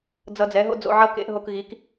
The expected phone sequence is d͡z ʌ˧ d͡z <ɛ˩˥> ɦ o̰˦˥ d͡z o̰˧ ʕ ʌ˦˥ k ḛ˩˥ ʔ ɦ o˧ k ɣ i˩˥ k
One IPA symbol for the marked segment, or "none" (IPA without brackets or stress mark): ɛ˩˥